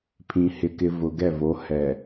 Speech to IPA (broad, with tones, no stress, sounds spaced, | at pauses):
pʰ ĩ˨ h ɪ˨ k ɪ˨ v ʊ˨ ɡ ɛ˦˨ v o˨˦ h ɛ˨